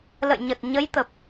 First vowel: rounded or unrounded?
unrounded